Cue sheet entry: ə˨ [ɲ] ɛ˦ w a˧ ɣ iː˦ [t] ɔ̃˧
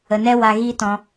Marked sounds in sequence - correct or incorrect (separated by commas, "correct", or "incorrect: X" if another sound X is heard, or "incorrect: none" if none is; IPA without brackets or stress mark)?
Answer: incorrect: n, correct